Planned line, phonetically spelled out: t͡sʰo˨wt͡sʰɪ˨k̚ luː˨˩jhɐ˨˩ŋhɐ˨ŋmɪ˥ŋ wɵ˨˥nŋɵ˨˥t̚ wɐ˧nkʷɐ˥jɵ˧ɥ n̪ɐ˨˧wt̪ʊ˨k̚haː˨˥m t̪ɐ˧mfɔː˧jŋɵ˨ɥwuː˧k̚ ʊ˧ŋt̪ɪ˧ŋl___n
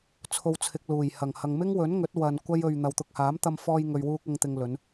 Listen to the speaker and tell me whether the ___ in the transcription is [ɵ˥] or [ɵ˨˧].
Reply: ɵ˨˧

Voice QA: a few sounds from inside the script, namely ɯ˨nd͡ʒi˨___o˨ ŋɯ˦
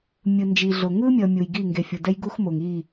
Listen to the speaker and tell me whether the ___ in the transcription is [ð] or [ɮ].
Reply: ɮ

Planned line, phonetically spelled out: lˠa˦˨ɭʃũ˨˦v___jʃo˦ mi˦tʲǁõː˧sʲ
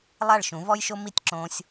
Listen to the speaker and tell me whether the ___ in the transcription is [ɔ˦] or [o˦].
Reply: ɔ˦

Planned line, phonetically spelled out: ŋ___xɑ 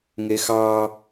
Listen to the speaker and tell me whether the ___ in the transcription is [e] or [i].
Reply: e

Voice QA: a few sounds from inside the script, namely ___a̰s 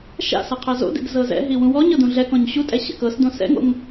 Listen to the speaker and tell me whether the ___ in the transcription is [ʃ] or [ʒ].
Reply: ʃ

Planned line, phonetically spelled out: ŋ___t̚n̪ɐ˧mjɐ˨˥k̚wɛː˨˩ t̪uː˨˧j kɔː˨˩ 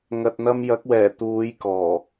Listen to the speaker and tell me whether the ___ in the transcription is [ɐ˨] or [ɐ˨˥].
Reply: ɐ˨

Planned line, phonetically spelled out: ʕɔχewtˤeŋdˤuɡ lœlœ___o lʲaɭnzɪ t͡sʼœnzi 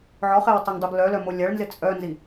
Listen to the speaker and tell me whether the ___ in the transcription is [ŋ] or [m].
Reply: m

